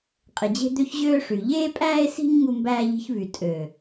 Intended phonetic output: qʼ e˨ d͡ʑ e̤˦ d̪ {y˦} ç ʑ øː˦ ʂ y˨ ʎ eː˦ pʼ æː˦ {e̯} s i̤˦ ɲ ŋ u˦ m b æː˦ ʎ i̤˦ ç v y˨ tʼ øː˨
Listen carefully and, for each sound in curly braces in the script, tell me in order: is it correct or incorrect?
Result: incorrect: ø˦, correct

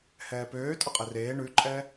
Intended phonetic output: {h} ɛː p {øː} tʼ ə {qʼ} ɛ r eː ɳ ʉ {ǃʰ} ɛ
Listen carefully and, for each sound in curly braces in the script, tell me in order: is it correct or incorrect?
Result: correct, correct, correct, incorrect: ǃʼ

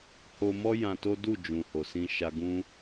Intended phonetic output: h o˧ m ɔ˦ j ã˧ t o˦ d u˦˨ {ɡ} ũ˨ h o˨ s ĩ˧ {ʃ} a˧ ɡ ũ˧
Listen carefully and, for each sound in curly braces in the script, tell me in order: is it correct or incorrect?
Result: incorrect: d͡ʒ, correct

